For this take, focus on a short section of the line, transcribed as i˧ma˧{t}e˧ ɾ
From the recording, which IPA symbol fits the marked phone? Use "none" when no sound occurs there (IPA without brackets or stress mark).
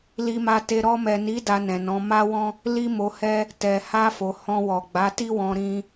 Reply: t